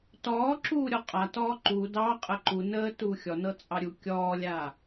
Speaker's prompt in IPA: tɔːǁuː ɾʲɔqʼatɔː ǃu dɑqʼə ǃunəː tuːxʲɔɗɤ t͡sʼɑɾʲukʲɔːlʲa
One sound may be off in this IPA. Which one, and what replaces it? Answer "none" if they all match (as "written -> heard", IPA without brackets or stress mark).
ɗ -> n